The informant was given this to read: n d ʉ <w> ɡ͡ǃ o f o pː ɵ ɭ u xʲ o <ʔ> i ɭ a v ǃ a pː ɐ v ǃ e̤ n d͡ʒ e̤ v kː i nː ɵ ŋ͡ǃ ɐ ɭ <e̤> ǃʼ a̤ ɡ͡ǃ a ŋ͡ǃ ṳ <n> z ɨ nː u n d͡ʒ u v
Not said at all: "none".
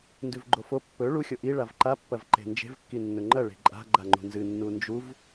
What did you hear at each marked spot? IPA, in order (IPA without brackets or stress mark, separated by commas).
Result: v, ʔ, e̤, n